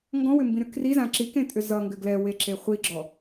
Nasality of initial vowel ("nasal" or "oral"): nasal